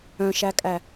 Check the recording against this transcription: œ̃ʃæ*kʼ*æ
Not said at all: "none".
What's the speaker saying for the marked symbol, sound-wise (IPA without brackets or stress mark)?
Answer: kʼ